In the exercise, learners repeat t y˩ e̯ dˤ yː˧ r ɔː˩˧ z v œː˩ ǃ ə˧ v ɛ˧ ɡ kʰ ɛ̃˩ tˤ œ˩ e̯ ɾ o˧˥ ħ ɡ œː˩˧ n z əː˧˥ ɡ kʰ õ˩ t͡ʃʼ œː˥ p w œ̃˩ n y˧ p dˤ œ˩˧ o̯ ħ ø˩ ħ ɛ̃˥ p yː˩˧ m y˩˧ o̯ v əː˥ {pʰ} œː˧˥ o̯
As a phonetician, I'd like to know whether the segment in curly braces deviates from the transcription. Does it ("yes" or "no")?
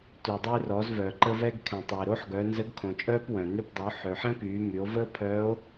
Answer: no